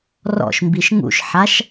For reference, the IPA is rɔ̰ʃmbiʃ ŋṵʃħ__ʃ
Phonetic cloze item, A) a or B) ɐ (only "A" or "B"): A